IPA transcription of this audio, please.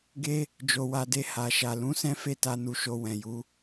ɡe˦ | d͡ʒo˧wa˧de˧ ha˨ʃa˨ lũ˨˦sɛ̃˦ fe˦˨ta˧nu˨ʃo˨ wɛ̃˨ju˨˦

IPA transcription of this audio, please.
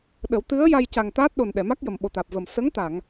ɗə˨˩˦wt̪ɨ˧˥ə̯ ja˧jca˨˩ŋ t̪aː˦˥t̚ ɗo˨˩n ɗɛ˨˩˨ma˦˥k̚ jə˨˩mɓo˨˩t̪aː˨˩p̚ və˨˩m sə˧˥ŋt̪a˨˩˨ŋ

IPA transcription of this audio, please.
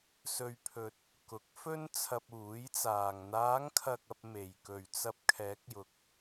sɵ˧ɥpʰɵ˧t̚ | kʊ˨˥k̚fɵ˥n t͡sʰɐ˧p̚uː˨˥jt͡saː˨ŋ n̪aː˨˧ŋkʰɐ˨k̚ɐ˨p̚ me˨˩j kɵ˨˩ɥt͡sɐ˨p̚ kʰɛː˨˥k̚jʊ˨k̚

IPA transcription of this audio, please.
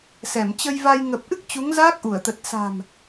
sɛ˧˩m t͡ɕə˧jva˧j ŋə˨˩p̚ʔɨ˦˥k̚ t͡ɕu˨˦ŋzaː˦˥k̚ʔu˧˩ə̯t̪ə˨˩t̚ sa̤˨˩m

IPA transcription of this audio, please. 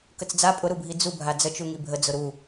kət͡sd͡za pʼʊɾubʱi d͡zu bʱad͡zət͡ʃu ŋibʱəd͡zʊ ɾu

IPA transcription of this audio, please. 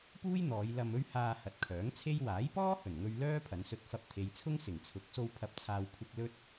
puː˥jn̪ɔː˨˧j lɐ˧mɵ˥ɥhaː˧hɐ˨t̚ kʰœː˨˥ŋt͡sʰe˥j waː˨˥jpɔː˥hɵ˨˩nŋɵ˧ɥ lœː˥pʰɐ˨˧n sɵ˧t̚fɐ˧p̚t̪ʰe˨jt͡sʰʊ˥ŋ sɪ˨˩ŋt͡sʰʊ˨˥k̚so˧w pʰɐ˨˥p̚t͡sʰaː˨w kʷʰɪ˧k̚ lɵ˥t̚

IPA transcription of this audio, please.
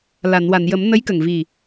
la˨˩˨nwa˨˩˨njə˨˩˦m nə˧˥jkə˨˩ŋ vi˨˩

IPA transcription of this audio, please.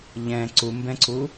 ʎɛ̃ ǀumbɛ̃ǀu

